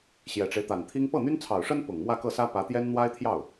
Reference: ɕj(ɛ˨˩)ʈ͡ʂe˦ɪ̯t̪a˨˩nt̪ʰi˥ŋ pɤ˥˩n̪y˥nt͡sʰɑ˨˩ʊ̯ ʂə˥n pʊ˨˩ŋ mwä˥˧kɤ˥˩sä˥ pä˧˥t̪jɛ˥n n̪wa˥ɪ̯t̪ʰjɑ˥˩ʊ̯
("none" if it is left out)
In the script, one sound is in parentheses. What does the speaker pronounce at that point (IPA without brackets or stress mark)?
ɛ˨˩